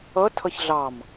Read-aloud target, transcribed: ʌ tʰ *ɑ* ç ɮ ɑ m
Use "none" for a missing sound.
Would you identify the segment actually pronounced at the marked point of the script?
ʌ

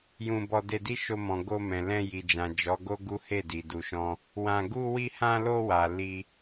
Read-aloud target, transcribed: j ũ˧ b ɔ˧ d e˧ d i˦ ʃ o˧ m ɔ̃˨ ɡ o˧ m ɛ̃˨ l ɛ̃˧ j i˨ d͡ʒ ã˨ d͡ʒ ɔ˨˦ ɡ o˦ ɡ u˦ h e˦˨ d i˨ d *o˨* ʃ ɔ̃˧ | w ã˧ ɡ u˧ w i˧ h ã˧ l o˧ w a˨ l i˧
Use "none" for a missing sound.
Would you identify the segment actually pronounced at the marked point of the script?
u˨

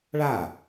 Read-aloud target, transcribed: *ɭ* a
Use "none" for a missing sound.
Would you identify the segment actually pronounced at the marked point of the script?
ɭ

